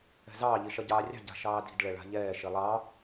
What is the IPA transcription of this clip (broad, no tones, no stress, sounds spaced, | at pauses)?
ɛ̤ z ɑː ʎ i ʃ ɐ ɟ ɑː rʲ ɑ̤ ɟ a̤ ʃ ɑː d i̤ d ɭ ɛ ɭ a̤ ʎ ɛː ʃ i lˠ ɑ